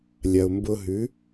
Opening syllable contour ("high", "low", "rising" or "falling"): low